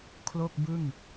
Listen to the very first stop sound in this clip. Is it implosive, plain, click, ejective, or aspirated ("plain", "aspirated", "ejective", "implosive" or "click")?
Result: aspirated